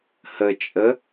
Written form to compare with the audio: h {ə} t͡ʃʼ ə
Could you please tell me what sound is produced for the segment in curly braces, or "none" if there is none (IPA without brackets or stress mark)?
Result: ə